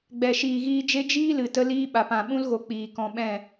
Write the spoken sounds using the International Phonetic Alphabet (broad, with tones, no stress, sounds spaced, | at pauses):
ɡ͡b ɛ˨ ʃ iː˨ ɣ iː˧ d͡ʒ e˦ d͡ʒ iː˦ l ɨ˨ t ə˦ l iː˦ ɓ a˨ p ã˨ ɓ ũ˦ l ɣ o˨ k͡p iː˨ k ɔ̃˧ ɓ ɛ̃˦˨